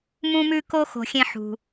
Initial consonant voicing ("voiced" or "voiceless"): voiced